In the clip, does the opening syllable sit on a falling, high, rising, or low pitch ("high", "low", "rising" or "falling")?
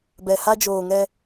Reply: low